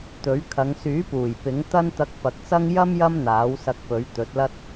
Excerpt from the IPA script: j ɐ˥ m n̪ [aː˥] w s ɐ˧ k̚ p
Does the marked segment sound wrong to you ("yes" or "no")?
yes